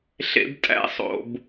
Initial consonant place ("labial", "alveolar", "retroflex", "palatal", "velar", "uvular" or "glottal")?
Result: alveolar